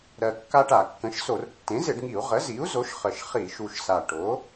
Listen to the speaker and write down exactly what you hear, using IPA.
ɾ ɜ˨˩ kː a˦ ʈ a˧˩˧ kː ə̃˩˥ ʃ s o˧˩˧ r tː ẽ˩˥ z ɪ˧˩˧ ɖ ŋ i˧˩˧ u̯ ʁ ə˩˥ z i˩˥ u̯ z o˩˥ ʃ χ ə˨˩ ʃ χ i˧˩˧ ʃ u˨˩ ʃ s a˨˩ ʈ o˩˥

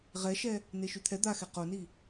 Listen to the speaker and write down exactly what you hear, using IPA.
ʁ ɛ ʃ ɛ | n e ʃ y t̪ʰ ɛ d̪ a x ɛ q o n i

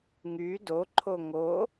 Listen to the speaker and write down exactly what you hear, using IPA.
ŋ y d o ǃʰ o ŋ o

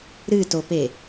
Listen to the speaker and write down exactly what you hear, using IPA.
ɾ ɨ t o p e

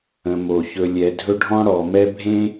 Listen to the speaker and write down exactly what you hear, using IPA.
ə̃˩ m o˩ ç ɵ˨ lʲ ɛ˨ dʱ ɵ˦ ɖʱ ɔ̃˥ ɽ ɔ˨ m ɛ˦ bʱ ẽ˥

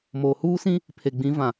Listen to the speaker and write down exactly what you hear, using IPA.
m oː˨ h uː˦ s ĩ˦ | pʰ e˨ ɡ͡b ĩ˨˦ v ã˨

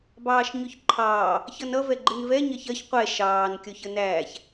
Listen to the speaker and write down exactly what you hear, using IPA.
b ɑː ʃ ɲ ʊ ç ǃʰ ɑː | ç ʌ n ʌ v ɛ ɡ͡ǃ ɪ n v ɛ ɲ ɜ ç ɜ ç qʷ ɛ ʃ ɑː n kʲ ɔ ç ə n æː ç

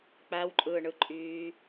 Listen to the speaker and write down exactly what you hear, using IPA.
k͡p æ w ǃʼ ɯː ɳ ɯ ǃʼ yː

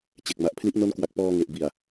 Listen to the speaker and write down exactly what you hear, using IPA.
t͡ɕ e˨˩ k̚ m a˨˩ ʔ pʰ l i˦˥ ʔ n o˦˥ n k w a˨˩ k̚ p ɔː˧ ŋ e˨˩ ʔ b i˨˩ a̯

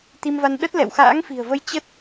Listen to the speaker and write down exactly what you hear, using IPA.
t̪ i˧ m v a˧ n ɗ ə˦˥ t̚ l ɛ̰˧˨ w x a̰ː˧˥ ŋ f i̤˨˩ ə̯ v ə˧ j t͡ɕ ə˦˥ t̚

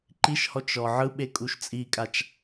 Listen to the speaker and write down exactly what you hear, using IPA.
ǃ i ʃ h ɔ t͡ʃ ɔ ʕ ɯ ɓ e kʼ u ʃ t͡sʼ i kʼ a t͡ʃ

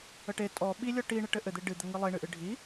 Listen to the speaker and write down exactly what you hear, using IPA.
ə ʈ e tʼ ɔ ɓ i lʲ ɔ ʈ i ɳ ɘ ʈ ɘ ʔ ɘ d̪ e ɖ ɨ d̪ ə ŋ ɨ lˠ e ɳ ɨ ʔ ɨ ɖʱ i

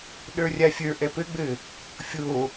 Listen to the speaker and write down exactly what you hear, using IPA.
ɗ ə˞ rʲ a fʲ ə˞ ʔ ɛ p ɘ ɡ͡b ɘ | fʲ o

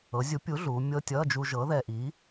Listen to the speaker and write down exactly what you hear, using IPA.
ɤ˨˥ zʲ u˨˥ pʲ u˨˥ ɮ uː˩˧ mʲ ɤ˧˥˧ tʲ ʌː˧˥˧ d͡ʒ u˧ ʒ ɤ˨˥ ð ɛ˧ ʔ iː˨˥

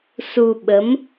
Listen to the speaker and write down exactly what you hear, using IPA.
s u˧ ɓ ə˨˦ m

